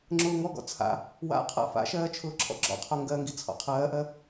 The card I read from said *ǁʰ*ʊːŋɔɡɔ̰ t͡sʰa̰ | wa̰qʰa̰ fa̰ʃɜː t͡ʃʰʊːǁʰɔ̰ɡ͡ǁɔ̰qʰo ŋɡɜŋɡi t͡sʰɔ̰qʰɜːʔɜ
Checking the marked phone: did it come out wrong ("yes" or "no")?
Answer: yes